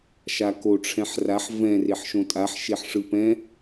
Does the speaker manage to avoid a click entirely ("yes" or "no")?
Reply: yes